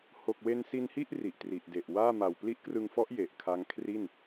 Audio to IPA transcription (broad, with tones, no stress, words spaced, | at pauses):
ho˨˩k̚we˧nsi˧nhi˥˩ʔ ri˨˩ʔtri˨˩ʔde˨˩ʔ waː˥˩ ma˨˩wpli˦˥ʔkrɯ˧ŋfɔ˦˥ʔ je˨˩ʔkʰa˦˥ŋ kʰri˥˩n